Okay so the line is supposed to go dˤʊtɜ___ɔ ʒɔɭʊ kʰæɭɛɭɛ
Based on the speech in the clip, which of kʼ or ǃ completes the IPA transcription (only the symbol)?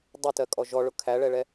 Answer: kʼ